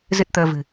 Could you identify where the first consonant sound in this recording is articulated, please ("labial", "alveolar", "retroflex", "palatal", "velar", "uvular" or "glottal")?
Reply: alveolar